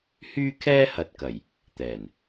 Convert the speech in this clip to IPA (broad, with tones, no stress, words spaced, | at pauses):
hyː˥kʰɛː˥hɐ˨t̚kɐ˨˩j | t̪ɛː˨˩n